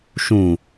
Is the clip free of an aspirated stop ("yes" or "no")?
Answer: yes